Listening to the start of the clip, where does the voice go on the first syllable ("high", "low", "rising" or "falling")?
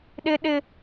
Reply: high